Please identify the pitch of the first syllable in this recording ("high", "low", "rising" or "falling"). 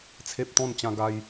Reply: high